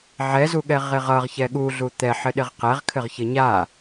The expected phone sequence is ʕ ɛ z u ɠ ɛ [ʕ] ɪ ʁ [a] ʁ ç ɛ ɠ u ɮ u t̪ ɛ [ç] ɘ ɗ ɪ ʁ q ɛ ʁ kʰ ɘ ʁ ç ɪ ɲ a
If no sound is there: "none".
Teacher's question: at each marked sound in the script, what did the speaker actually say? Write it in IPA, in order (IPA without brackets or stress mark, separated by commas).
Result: ʁ, ʌ, ħ